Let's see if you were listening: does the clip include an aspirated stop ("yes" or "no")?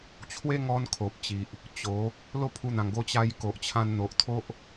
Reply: yes